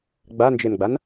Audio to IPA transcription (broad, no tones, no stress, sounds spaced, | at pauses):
ɡ͡b a n d͡ʒ e n ɡ͡b a n